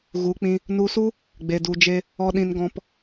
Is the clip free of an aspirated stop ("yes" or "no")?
yes